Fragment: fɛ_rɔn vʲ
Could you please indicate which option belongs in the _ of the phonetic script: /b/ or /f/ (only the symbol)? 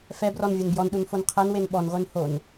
b